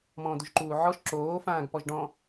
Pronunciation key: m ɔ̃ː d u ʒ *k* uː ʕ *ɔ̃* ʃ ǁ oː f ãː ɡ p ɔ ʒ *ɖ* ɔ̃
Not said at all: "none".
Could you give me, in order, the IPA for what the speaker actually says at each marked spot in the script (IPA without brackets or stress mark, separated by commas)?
ǃ, ɔ, ɖ